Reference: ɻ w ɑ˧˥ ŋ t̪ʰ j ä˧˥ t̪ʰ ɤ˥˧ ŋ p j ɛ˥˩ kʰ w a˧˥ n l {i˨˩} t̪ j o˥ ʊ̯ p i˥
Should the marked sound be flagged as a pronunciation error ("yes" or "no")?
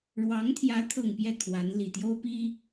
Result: no